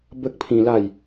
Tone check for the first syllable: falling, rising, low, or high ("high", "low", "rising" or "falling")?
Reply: high